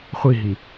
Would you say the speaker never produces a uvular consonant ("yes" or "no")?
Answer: no